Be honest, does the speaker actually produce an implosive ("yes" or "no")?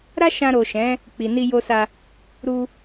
no